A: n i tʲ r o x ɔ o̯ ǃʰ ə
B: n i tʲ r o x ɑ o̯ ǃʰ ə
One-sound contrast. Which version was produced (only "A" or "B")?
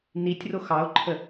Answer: B